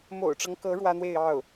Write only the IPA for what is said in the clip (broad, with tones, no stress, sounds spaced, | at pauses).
m o̰˨˩ ʊ̯ ʈ͡ʂ ɤ˦ ŋ k ɤ˧˥ ɻ w ä˥ n̪ w e˥˧ ɪ̯ ɑ˥˩ ʊ̯